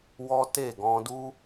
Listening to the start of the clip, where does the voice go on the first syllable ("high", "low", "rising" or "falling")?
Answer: high